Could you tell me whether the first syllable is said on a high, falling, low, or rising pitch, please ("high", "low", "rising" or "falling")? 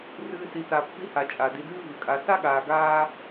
low